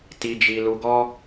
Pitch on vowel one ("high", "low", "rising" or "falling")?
low